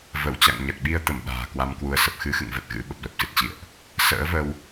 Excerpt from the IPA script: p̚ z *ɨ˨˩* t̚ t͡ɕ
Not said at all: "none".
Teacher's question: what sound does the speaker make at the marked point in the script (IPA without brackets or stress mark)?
ɨ˨˩